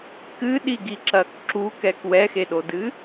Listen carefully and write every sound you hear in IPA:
kɨɗiɡiǁɐk ǁukɛk wɛxeɗodɨ

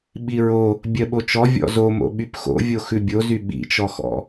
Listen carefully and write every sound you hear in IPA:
ɓiɹo | bʲɜɓot͡ʃɔ vʲɔ̰zomo̰ ɓypxo̰vʲo xʉbʲozy ɓḭt͡ʃɔxɔ̰

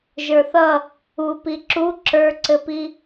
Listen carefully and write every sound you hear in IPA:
ʒə˞θʌ | u piǁu ǁə˞ǀɘpi

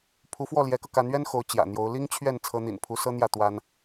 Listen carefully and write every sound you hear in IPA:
pʰu˧˥fwɔ˥˩ljɛ˧˥kɤ˧ ka˧˥nɥɛ˥n xo˧˥ʊ̯ t͡ɕjä̰˨˩n̪jo˧˥ʊ̯ li˥ŋt͡ɕʰɥɛ˥˩n t͡sʰɤ˧˥n̪ḭ˨˩n pʰu˧˥sɤ˥n̪jä˥˩ t̪wa˥n

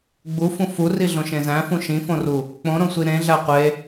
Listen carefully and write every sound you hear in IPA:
ɡ͡bufũ furiɮõʃẽ zæ̃fũ ʃĩfõru | k͡põɾõsʷi ɾẽɮæ qʷe

